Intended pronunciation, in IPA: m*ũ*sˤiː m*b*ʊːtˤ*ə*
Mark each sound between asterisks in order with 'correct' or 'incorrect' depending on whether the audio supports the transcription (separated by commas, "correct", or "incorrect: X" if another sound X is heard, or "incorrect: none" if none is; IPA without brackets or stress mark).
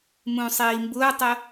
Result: correct, correct, correct